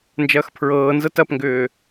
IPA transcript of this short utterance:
n d͡ʒ ɐː x pʰ ɹ ɤː n z ɤ t ɐ p ŋ ɡ ʏː

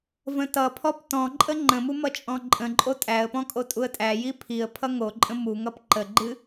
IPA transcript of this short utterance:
v ə̃ t ʌ pʰ ɔ p t ɔ̃ ǃʼ ə ŋ͡ǃ ə̃ m u m ʌ t͡ʃʼ ɔ̃ ǃʼ ə̃ ǃʼ o tʼ æ ə̯ p ɔ̃ kʼ o tʼ u ə̯ tʼ æ j i pʰ i ə̯ pʰ ʌ ŋ o ǃʼ ə̃ m u ŋ ʌ p ǃ ə ɡ͡ǃ ɨ

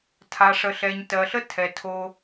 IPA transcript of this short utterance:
tʰ a˨ ʂ ə˨ ɬ ɛ˨ ɲ t ɜ˨ ɬ ə˦ tʰ ɛ˨ tʰ o˧

